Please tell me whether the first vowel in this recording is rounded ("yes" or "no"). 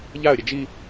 no